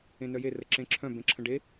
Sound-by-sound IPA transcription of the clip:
ẽ n œ j e r ə ǁ ẽ ǁʰ œ̃ b ẽ ǁʰ ə̃ ɖ e

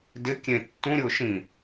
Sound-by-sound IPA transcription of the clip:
d ɪ kʲ ẽ tː ũ ɾʲ ʊː ʃ ĩ

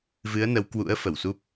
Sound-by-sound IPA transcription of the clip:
v ɨ˨˦ ə̯ n ə˨˦ w k w ṵ˧˥ ə̯ f ə˧˩ w s u˦˥ p̚

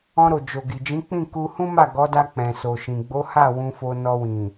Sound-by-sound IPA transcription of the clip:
ɔ̃˧ ɾ o˨ d͡ʒ o˨ ɡ i˨ d͡ʒ ĩ˨˦ k͡p ĩ˦˨ k u˧ h ũ˦ m a˦˨ ɡ ɔ˨˦ d a˧ k͡p ɛ̃˨ s o˨ ʃ ĩ˨ ɡ͡b o˨˦ h a˦˨ w ũ˧ f o˧ n ɔ˧ w ĩ˨

